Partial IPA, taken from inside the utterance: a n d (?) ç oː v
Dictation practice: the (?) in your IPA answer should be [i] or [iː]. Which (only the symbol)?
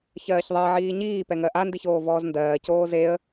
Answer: i